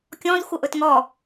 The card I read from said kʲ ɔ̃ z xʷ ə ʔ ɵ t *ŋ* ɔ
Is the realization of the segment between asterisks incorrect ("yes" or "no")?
no